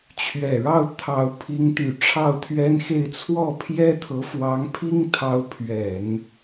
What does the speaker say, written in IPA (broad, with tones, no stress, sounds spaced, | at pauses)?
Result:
t͡ɕʰ ɥ ɛ˨˩ ɻ ɑ˥˩ ʊ̯ t̪ʰ ɑ˧˥ ʊ̯ pʰ i˧˥ ŋ t̪ y˨˩ ʈ͡ʂʰ ɑ˥˩ ʊ̯ t̪ʰ ɥ ɛ˥ n x e˥˧ ɪ̯ t͡sʰ w ɔ˥˩ pʰ j ɛ˥ t̪ʰ ɤ˧˥ f w ɑ˧˥ ŋ pʰ i˥ ŋ t̪ʰ ɑ˧˥ ʊ̯ pʰ ɥ ɛ˨˩˦ n